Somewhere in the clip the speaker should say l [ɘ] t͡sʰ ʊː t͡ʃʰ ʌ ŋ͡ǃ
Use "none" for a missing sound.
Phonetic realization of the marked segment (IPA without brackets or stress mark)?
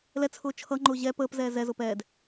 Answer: ɛ